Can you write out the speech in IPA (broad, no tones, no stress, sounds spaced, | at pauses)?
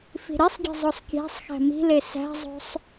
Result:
f i̤ ɾ i sˤ ɡʲ e̤ zˤ o sˤ kʲ æ̤ sˤ x æ̤ m i̤ l e s æ̤ zˤ o̤ sˤ